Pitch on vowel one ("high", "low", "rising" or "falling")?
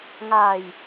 low